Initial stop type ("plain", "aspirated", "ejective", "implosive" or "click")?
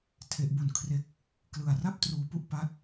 aspirated